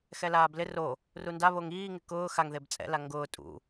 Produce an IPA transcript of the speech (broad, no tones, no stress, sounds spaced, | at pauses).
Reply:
x ɛ l aː b l ɪ r o | r u n d a β o ŋ iː ŋ ɪ k ʊː x a ŋ ð e b t͡sʼ ɛ̰ l a ŋ ɡ ʊː tʼ ṵ